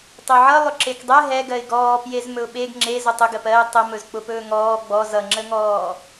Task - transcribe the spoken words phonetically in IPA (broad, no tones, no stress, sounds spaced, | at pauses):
tˤ ɵ ʕ ʌ lˠ ʊ ǁ e k dˤ ɛ ɦ ɛ ɡ ɜ ɪ̯ ɡ ɔː p j e z m ɵ ʊ̯ ɓ e ɡ ŋ͡ǁ e z ʊ tˤ ʊ ɡ ɜ p ɜ ɪ̯ tˤ ə m ɵ z k͡p ʊ p ɵː ŋ ɔː ɡ͡b ɔ z ʌ ŋ͡ǁ ə ŋ ɔː